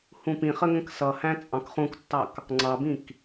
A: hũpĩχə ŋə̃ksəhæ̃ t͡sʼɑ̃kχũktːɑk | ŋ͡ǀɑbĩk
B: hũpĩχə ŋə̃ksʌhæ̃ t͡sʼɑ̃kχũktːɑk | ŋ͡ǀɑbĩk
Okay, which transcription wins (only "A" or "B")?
B